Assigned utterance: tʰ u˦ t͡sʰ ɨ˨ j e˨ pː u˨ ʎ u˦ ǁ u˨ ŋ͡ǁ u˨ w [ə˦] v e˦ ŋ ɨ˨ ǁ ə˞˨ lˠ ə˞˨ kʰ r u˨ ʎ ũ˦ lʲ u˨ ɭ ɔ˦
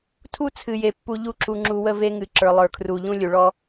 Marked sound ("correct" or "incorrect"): correct